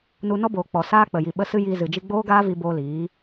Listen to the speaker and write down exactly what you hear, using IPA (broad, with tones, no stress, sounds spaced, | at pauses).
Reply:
n u˧ n ɔ˦ b oː˨ k͡p ɔ˨ s aː˦ k͡p ə˨ j i˨ ɓ ə˧ s ɨ˦ j iː˧ z ɨ˨ d͡ʒ i˧ ɡ͡b oː˦ ɡ aː˦ v i˧ b oː˧ l iː˨˦